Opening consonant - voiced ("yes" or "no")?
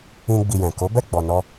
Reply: yes